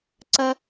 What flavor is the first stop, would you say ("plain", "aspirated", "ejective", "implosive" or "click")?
click